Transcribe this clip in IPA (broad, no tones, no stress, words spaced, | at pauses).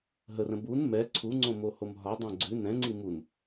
ɦərə̃ bun mɛ ǀʰuŋ͡ǀõmohom ɦɒdˤɛ̃ ɡ͡ǀʉ nɛ̃ŋ͡ǀi mun